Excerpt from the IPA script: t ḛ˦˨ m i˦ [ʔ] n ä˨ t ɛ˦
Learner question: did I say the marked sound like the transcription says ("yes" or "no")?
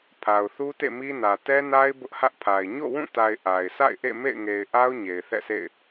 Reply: no